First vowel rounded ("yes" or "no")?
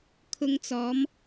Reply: yes